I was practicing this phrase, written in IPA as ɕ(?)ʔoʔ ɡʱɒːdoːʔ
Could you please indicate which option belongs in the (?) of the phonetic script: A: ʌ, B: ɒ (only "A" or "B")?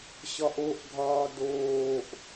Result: B